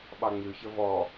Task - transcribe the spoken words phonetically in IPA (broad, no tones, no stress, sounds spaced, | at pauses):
ɓ ɑ ŋ͡m ʉ ç ə v ɔ